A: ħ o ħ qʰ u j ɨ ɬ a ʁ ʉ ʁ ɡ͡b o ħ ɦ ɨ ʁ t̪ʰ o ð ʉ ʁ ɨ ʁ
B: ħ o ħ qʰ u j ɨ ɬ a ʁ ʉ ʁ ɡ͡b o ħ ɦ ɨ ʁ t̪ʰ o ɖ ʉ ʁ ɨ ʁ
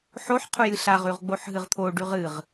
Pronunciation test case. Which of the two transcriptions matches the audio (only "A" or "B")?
B